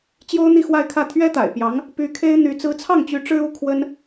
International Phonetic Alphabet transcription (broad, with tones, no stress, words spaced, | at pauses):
t͡ɕjo˥ʊ̯n̪i˥˧xwa˥˧ɪ̯kʰä˥˩ t̪ʰɥɛ˥t̪a̰˨˩ɪ̯pjɑ˧˥ŋ | py˧˥kʰe˥ɪ̯ n̪y˧˥ t͡sɹ̩˧˥t͡sʰɑ˥˩ŋt͡ɕy˧˥ ʈ͡ʂɻ̩˥u˧˥ kʰwə˥n